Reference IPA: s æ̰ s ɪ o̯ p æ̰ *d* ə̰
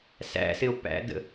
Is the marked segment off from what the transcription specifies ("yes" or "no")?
no